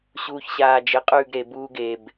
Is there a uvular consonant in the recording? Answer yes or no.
yes